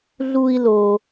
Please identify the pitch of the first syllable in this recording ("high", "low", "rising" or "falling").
high